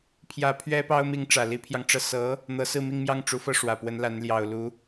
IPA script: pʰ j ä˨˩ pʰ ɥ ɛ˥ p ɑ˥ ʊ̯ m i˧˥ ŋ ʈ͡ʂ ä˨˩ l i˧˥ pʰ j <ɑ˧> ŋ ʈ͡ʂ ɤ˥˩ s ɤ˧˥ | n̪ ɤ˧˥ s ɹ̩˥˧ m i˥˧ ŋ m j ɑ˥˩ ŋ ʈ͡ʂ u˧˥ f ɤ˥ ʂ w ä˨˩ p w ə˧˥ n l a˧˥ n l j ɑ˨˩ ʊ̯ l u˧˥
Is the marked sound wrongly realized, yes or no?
no